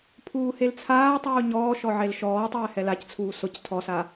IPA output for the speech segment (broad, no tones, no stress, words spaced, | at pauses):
pʰuːhelt͡sʰaːtˤuː ɲɔːʃɔ ʕelʃɔːtˤɛː hɛlact͡sʰuː sʊc tʰɔsa